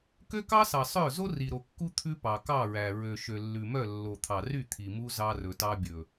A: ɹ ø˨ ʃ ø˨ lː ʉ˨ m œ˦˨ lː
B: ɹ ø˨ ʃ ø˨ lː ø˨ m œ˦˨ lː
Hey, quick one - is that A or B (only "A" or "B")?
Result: A